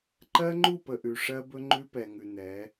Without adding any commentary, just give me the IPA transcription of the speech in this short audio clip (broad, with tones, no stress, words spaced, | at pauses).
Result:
ǃɜ˦ŋ͡ǃu˦˨pə˨ ʔʉ˨ʂɜ˦bɵ˦ ŋ͡ǃʉ˦pɛ˨ŋʉ˨nɛ˨˦